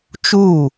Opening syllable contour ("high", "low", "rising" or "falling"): falling